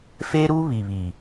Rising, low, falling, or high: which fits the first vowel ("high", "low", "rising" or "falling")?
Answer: high